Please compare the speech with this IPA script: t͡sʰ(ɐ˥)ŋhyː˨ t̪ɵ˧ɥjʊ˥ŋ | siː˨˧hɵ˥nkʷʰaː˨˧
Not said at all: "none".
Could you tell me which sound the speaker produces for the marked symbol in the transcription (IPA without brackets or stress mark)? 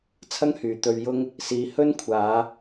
ɐ˥